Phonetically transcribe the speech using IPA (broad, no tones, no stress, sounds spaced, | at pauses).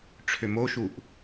ʈ͡ʂʰ ø m o ʃ u ʔ